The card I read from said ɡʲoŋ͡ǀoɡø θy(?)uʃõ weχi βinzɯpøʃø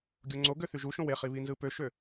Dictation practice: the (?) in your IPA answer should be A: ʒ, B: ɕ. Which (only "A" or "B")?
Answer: A